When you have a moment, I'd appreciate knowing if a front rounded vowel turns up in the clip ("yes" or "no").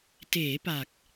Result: no